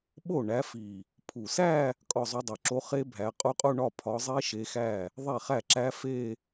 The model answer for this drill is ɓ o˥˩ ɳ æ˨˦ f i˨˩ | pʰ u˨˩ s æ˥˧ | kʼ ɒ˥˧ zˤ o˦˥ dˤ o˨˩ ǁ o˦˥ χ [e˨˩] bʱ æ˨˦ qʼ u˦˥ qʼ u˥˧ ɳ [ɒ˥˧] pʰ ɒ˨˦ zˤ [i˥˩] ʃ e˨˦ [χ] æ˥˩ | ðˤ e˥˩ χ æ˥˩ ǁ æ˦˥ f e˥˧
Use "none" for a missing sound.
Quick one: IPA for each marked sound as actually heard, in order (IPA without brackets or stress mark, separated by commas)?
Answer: e˦˥, ɒ˥˧, i˦˥, x